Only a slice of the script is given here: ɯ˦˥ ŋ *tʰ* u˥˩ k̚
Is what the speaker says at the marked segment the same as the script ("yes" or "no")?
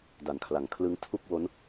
yes